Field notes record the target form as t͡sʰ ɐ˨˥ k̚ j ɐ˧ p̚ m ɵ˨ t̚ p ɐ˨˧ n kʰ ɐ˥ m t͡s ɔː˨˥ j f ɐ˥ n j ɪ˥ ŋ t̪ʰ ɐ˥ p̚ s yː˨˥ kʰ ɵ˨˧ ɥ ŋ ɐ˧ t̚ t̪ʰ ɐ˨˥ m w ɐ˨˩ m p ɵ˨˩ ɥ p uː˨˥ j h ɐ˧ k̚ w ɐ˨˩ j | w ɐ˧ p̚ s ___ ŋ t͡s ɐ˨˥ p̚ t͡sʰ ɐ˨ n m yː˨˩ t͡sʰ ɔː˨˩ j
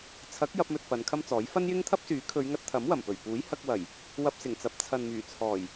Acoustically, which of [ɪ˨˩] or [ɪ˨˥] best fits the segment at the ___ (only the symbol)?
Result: ɪ˨˩